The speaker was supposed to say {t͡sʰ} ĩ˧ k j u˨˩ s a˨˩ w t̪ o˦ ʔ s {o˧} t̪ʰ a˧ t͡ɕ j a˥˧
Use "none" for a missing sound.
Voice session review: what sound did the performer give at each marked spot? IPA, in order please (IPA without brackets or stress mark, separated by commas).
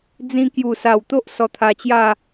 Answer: d͡z, ɔ˧